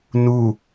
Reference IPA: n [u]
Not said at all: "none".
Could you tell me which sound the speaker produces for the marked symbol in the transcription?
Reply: u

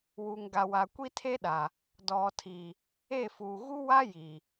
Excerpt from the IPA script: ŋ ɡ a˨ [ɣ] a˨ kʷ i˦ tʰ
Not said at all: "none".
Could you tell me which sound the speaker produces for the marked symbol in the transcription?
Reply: w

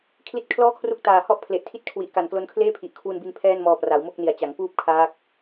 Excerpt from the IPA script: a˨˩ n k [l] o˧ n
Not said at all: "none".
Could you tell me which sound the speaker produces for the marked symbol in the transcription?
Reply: l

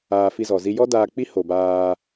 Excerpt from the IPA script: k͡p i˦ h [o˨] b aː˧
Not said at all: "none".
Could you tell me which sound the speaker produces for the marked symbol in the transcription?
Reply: o˨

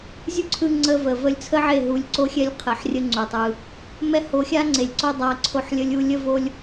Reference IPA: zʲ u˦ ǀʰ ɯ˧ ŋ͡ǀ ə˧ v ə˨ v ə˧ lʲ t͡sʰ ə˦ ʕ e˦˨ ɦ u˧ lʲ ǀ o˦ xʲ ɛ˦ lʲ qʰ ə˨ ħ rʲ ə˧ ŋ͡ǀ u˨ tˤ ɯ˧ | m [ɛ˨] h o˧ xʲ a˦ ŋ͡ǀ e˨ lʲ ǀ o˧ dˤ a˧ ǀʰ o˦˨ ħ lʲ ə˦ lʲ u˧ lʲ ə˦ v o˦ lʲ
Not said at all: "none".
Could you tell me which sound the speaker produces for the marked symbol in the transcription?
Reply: ɛ˦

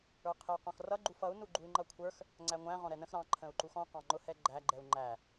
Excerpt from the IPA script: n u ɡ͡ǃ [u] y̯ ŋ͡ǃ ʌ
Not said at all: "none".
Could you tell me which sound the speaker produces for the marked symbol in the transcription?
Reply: u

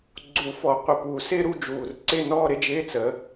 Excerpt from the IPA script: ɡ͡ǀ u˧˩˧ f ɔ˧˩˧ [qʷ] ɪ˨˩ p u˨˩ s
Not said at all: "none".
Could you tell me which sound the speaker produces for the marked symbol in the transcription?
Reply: qʷ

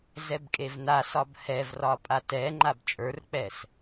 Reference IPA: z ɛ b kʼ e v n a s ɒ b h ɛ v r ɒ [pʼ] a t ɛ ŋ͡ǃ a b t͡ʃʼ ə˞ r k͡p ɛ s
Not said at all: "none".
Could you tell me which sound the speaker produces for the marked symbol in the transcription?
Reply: pʼ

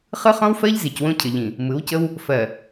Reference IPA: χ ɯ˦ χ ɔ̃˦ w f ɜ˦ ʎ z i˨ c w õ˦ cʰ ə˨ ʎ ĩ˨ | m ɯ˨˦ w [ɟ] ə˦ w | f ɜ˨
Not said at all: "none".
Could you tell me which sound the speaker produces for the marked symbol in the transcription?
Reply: c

